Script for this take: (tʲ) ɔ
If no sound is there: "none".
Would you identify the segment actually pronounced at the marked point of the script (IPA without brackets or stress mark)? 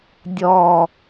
dʲ